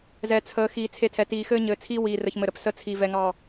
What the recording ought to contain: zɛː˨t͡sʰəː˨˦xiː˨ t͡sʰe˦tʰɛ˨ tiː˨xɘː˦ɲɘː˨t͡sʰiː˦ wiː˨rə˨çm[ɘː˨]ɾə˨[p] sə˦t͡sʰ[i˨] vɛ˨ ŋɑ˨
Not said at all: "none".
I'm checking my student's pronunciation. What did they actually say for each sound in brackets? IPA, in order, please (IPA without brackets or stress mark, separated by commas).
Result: ɘ˨, p, i˨